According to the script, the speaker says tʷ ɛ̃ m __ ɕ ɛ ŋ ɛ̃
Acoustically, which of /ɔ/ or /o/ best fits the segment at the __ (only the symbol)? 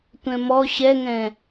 ɔ